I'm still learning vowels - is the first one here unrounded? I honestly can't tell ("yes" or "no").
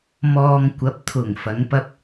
no